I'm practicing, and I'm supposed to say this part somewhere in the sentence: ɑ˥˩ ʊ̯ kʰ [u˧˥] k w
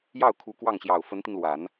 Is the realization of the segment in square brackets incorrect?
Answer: no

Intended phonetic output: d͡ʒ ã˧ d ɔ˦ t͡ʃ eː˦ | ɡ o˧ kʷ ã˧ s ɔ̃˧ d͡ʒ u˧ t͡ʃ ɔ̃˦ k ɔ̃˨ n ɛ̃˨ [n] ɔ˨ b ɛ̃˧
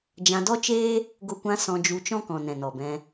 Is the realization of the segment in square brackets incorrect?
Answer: no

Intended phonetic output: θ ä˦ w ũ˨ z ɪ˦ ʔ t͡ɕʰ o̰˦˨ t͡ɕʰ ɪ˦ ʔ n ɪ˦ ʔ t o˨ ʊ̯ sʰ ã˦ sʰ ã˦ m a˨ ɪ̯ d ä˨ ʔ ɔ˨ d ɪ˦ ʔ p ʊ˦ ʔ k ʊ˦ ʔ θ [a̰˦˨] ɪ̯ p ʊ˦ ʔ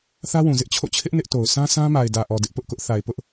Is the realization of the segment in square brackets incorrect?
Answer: yes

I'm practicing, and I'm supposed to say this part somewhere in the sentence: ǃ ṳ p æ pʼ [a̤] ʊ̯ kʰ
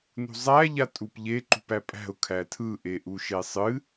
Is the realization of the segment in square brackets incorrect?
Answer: yes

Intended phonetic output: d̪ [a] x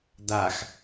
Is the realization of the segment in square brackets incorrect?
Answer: no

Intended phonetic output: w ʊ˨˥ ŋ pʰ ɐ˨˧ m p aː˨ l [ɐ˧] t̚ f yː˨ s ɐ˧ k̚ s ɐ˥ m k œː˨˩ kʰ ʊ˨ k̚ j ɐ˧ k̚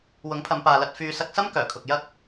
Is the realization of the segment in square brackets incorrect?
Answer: no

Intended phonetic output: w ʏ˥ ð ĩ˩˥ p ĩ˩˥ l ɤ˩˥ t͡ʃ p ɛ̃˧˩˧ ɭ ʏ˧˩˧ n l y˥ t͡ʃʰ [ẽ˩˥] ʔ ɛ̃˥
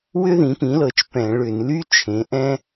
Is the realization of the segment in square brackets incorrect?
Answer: no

